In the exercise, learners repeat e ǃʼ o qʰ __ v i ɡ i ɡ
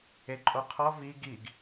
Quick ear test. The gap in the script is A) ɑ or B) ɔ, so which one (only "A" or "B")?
B